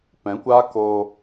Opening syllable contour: rising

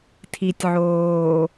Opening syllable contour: low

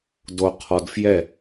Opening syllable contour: low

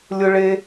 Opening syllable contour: high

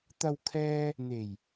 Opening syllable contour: low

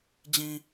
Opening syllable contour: low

